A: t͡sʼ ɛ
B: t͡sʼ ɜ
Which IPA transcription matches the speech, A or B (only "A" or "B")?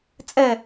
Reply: A